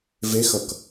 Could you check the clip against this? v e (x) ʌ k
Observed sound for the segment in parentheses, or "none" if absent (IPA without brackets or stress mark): x